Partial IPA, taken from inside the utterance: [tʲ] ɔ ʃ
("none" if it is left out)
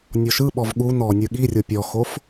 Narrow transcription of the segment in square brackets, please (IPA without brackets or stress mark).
nʲ